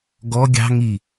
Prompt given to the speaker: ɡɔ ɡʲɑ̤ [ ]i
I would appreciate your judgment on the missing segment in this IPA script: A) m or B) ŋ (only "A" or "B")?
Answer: B